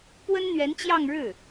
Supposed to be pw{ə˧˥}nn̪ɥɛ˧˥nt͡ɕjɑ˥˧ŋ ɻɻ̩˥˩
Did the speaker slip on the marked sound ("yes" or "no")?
yes